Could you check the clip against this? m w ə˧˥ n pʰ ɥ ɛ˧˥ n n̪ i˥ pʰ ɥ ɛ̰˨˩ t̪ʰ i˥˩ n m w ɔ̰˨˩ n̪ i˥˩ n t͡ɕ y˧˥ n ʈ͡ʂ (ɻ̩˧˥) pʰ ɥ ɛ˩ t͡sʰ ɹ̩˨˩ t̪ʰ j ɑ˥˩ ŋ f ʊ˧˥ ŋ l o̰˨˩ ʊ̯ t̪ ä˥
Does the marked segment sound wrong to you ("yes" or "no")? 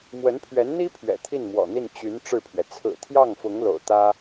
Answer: yes